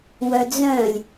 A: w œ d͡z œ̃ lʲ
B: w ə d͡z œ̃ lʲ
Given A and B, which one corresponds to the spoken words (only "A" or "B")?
A